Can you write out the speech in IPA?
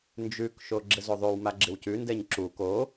nd͡ʒʉkʃo ɡ͡ǁɘzoðˤʉwma ɡ͡ǁɪwcʉndɛɲ ǁu ko

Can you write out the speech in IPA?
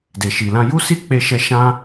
de˨ʃi˨lã˧ ju˦si˦ k͡pe˦ʃɛ˦ ʃã˦

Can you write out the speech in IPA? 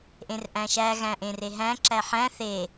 ʔẽrʔæ̃ʃæ ɣæ̃ʔẽreɦæ̃ ǁæħæ̃ θe

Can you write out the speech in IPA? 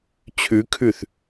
t͡ɕʰʉkʰʉθ

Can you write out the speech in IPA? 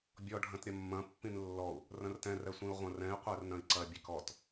bʲɔ ɖʱɐ̃tɾʲɐmːɐ̃ pːĩnlːɔu̯ | rɐ̃rtɛ̃r ɛsʷĩu̯ʁʷɐ̃rɛ̃i̯ qʷɛrnɐ̃i̯ǀɐ bʲɛkɔt

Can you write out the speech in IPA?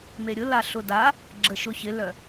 meɾʲʊla ɬʊda | ɡ͡ǁəʃʊ çɪlœ

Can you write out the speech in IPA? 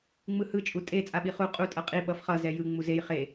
ŋ͡mɯhɯ t͡ʃʼutʼe t͡sʼaɓiχu qʼu tʼʌqʼi ɓʌfχʌ zɛjɯ ŋ͡muzej χe

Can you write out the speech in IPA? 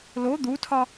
lo d̪utʰɒ

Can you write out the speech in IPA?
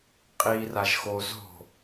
qʼi raʒxo zo̤

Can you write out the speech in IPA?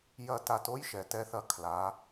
jɐ˦˨ta˧to˦j ʃɛ˨tɛ˧θɐ˧ kʰla˨˦

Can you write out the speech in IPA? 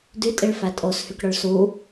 dytʼiɭfæ tʼoshykɽœɭ su

